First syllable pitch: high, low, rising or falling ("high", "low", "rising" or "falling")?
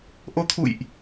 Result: rising